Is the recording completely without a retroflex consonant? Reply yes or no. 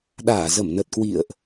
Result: yes